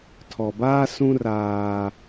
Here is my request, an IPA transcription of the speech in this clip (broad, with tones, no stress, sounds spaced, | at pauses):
tʰ ɔ˨ b aː˦ s ũ˦ r aː˦